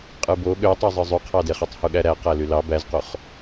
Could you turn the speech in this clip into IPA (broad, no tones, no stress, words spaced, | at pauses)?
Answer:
qʼɯbo ɠøtˤøzˤɯ zˤyqʰɑdeχøtˤ huɠæɾæ qælylɑ bæzqoχ